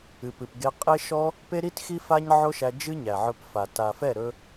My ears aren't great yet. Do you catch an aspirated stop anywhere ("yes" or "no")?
no